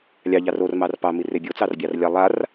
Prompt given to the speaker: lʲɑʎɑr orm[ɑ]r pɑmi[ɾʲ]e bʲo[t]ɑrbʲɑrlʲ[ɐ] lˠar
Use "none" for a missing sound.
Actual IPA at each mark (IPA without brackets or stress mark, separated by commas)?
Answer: ɑ, r, t͡s, a